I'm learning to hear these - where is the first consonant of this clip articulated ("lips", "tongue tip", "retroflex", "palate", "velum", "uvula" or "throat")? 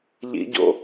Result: palate